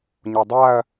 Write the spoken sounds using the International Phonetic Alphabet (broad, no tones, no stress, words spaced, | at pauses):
ɲodˤaɐ̯